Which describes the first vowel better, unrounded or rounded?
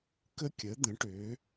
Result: unrounded